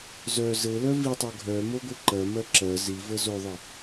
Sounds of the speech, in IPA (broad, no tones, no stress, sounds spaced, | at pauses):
z œ z ɘ l œ v i tˤ ə˞ ɡʱ œ m o ɡʷ ɘ ǃ ɜ m ɜ ǁ ɜ z i v ə z o ðˤ ɘ